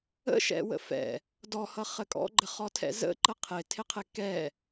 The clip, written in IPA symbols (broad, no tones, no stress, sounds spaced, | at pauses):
ə̰ ʃ ɛ̰ w ə̰ f ɛ̰ | d ɔ h ʌ χ ə kʼ ɔ̰ ɡ͡ǃ ə χ ɔ tʰ ɛ̰ z ə̰ ǃ ə qʰ ɪ tʰ ɪ qʰ ɪ k ɛ